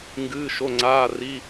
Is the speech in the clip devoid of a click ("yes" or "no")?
no